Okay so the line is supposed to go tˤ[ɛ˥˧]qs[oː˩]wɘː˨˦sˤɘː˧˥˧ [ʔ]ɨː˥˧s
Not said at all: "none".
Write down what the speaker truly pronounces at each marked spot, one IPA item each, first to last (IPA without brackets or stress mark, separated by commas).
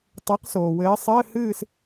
ɛ˨˦, oː˩, h